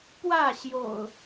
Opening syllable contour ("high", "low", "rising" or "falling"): falling